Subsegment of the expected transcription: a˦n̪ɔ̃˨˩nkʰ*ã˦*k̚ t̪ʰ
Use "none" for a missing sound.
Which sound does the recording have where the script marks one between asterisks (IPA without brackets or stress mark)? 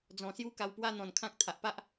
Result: ã˦